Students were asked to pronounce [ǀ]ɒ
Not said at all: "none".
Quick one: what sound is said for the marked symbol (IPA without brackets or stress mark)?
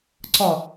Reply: ǀ